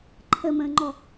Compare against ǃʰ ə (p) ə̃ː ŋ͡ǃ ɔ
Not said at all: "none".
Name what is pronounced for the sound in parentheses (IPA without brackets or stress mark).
m